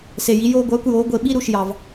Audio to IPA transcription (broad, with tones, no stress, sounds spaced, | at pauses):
s e˩ j i˩˥ j oː˧ ɡʷ œː˩˥ kʷ j oː˩˥ ɡʷ e˩˥ ɓ i˥ ɾ u˩ ʃ j ɑ˩ v